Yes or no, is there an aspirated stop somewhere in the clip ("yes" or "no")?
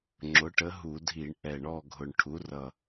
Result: yes